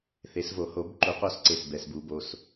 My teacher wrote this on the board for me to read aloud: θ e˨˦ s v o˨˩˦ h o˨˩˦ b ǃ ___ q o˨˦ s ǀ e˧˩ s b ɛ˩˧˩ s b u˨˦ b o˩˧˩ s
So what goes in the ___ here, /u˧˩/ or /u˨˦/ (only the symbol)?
u˨˦